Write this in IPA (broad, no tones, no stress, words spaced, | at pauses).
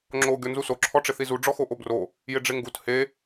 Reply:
ŋ͡ǁo ɡʲɔnzuso ǁʰɔʈ͡ʂɪθizu ɖ͡ʐɔxoʔobro | jɪɖ͡ʐɪŋɡut he